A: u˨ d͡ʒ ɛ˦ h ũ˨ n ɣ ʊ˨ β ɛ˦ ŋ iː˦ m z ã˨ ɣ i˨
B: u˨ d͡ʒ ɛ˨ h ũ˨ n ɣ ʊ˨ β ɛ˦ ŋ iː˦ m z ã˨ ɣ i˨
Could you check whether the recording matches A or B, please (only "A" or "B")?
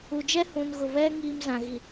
A